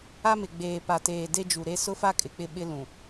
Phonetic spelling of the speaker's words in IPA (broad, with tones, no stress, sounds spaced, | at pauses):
a˦ m ɪ˨ ɡ͡b eː˨ p a˨ t eː˨ d e˦ d͡ʒ u˨ ɾ e˦ s ʊ˦ f a˦ kʼ ɪ˨ k͡p ɪ˦ ɓ ɪ˦ l ũ˨